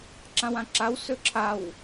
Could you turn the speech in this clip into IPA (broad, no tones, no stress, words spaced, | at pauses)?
ǁãwãǁaw sɵǁʰaw